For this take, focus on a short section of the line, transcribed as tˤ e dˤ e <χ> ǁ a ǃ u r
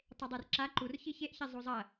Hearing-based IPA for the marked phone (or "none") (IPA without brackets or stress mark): r